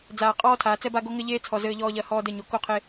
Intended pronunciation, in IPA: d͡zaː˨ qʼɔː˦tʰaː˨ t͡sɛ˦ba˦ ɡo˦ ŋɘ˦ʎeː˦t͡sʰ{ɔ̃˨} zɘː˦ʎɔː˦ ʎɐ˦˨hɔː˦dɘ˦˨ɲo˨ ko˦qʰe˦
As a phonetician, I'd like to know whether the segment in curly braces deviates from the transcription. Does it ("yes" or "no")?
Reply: yes